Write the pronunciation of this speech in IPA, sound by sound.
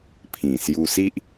pʰ ĩ˨˩ s j u˧ s i˦ ʔ

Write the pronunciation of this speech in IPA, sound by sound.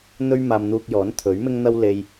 n̪ ɵ˥ ɥ m aː˧ m n̪ uː˧ k̚ j ɔː˨˥ n t̪ʰ ɵ˨˥ ɥ m ɪ˥ ŋ n̪ ɐ˥ w l e˧ j

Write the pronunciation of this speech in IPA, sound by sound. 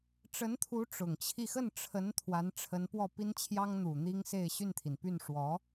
ʈ͡ʂ ə˧˥ n t̪ʰ u˧˥ ʈ͡ʂ ʊ˨˩ ŋ t͡ɕʰ i˥˧ x ə˥˩ n ʈ͡ʂʰ ə˧˥ n t̪ʰ w a˧˥ n ʈ͡ʂʰ ə˧˥ n p w ɔ˥˩ p i˥ n t͡ɕʰ j ɑ˥ ŋ n̪ u˨˩ n̪ i˥ ŋ s e˥˧ ɪ̯ ɕ y˥˩ n t̪ʰ i˩ n p y˥˩ n ʂ w ɔ˧˥

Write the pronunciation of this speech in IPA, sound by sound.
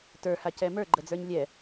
t ə˞ h a c ɛ m ə˞ ɡ͡ǃ ə d͡z ə˞ ɲ lʲ ɛ

